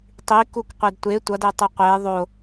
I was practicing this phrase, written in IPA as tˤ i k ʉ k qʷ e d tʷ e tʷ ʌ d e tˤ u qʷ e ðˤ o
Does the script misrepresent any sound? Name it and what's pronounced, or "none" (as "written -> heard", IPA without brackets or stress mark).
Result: ʉ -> u